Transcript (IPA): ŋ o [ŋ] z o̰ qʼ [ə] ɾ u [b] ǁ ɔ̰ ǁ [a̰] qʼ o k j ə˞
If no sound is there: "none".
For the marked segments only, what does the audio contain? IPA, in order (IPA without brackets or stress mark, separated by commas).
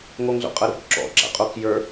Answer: ŋ, ɐ, b, a̰